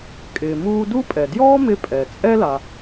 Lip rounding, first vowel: unrounded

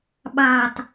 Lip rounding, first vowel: unrounded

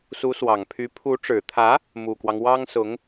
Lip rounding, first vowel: rounded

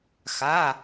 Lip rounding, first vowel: unrounded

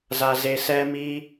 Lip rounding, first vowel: unrounded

